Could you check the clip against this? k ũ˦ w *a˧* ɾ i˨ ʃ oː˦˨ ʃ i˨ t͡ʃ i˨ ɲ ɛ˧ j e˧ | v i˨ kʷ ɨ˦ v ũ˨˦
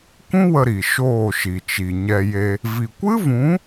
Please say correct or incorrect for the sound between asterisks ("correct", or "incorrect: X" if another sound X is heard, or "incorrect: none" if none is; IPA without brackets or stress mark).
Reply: incorrect: ə˧